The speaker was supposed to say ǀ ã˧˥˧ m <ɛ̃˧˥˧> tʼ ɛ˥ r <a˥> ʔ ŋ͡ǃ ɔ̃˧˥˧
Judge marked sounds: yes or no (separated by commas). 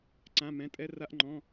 yes, yes